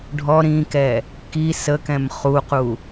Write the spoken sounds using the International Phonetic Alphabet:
ɖʱɔ ɾĩkɛ | ki səkɛ̃m χuqu

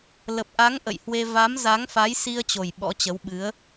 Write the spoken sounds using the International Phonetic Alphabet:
lə˨˩p̚ʔa˨˦ŋ ʔə̰˧˨jhwe˧ va˨˦mza˨˦ŋfa˨˦j si˧ə̯t͡ɕo˨˩j ɓɔ̰˧˥t͡ɕə˨˦wɓɨ˨˦ə̯

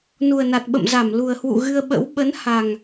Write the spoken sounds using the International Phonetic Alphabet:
nu˨˩ə̯na˨˩t̚ɓə̰˧˨mza˧˩m lu˨˩ə̯hwṵ˧˨ ɣɨ˧ə̯ɓə̰˧˥w ɓə˨˦n ha˨˩ŋ

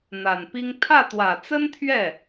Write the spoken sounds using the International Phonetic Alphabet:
n̪a˨˩npi˥ŋ t̪ʰä˥˩t̪wä˨˩t͡sə˥nt̪ʰɥɛ˥˩

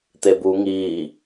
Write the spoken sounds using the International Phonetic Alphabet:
t̪ebu ŋiː

